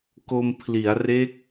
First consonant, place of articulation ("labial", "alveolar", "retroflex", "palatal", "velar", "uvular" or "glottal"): velar